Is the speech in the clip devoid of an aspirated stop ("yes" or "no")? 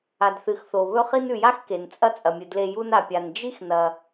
yes